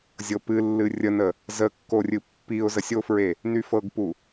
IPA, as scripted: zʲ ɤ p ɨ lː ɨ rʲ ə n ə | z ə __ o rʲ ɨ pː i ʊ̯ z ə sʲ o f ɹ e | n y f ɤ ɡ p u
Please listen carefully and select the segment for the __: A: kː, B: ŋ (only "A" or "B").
A